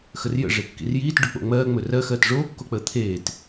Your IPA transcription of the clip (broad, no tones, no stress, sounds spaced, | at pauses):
x ə r j ə̰ ʐ e kː ḭ r j iː t ɖ ɵ k͡p o̰ ŋ͡m ɜː ŋ͡m ɵ r ɜ x ɜː t ʐ oː kː o k͡p əː t̪ʰ eː t